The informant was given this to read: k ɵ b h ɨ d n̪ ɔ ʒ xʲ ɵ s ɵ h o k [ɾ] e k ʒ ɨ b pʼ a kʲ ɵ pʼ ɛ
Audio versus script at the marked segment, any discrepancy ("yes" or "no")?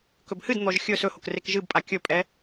yes